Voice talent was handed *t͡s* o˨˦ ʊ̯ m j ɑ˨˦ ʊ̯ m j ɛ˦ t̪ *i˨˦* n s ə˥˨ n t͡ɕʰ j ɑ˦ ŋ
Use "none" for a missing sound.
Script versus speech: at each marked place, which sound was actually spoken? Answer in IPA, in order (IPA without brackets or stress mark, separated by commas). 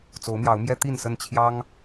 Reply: t͡s, i˥˨